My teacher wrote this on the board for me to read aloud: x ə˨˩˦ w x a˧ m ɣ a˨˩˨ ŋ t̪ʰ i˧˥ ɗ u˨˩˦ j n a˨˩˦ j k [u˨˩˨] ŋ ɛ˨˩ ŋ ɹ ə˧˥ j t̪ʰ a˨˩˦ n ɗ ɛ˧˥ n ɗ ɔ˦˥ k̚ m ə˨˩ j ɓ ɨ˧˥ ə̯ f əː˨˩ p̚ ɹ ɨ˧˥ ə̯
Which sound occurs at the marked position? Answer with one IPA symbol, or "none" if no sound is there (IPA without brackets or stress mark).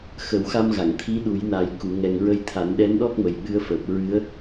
u˨˩˨